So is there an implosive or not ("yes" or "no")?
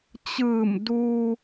no